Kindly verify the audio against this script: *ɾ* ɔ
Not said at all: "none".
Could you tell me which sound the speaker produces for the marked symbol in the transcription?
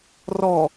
r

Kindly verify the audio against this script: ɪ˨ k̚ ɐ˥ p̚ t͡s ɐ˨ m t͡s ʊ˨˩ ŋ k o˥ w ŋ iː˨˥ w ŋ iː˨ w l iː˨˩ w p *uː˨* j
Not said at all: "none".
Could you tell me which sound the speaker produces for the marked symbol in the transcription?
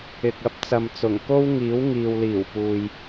uː˨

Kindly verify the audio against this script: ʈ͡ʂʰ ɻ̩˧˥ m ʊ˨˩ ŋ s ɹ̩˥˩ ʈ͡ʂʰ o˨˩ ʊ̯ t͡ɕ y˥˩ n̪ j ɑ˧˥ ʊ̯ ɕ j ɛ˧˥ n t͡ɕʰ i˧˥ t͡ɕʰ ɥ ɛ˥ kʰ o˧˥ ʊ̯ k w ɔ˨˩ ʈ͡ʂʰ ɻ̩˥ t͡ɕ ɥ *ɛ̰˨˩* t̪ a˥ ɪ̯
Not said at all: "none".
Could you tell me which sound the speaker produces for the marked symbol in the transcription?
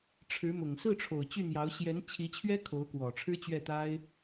ɛ˥˩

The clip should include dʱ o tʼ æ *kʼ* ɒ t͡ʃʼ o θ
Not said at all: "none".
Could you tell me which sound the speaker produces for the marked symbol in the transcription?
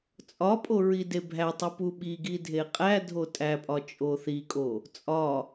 pʼ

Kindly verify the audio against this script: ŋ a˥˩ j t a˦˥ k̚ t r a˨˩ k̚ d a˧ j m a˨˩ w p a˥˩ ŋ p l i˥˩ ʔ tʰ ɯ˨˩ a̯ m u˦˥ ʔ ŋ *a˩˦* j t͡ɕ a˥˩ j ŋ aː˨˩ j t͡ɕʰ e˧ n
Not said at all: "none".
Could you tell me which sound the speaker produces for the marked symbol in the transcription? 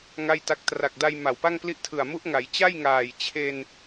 a˩˦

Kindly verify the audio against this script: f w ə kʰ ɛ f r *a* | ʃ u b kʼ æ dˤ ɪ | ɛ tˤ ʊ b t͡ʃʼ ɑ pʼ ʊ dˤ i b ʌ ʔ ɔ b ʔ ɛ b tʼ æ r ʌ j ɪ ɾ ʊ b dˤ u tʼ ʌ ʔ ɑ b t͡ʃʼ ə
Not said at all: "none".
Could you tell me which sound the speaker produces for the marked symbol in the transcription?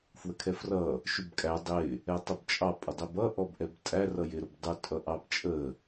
ʌ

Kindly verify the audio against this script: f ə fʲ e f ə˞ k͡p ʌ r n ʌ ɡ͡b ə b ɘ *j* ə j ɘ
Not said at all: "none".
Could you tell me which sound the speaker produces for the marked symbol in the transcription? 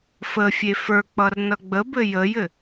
j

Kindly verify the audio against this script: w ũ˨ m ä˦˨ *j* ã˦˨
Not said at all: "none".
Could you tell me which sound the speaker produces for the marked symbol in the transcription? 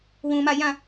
j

